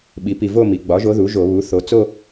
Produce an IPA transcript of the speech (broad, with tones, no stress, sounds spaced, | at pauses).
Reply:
ɓ i˩˧ p i˨˩ v o˥˧ m i˩˧ ɡ͡b ɒ˩˥ ʒ o˧˥ ð u˩˥ ʒ o˧˩˧ β u˩˥ θ o˩˧ t͡s o˥˧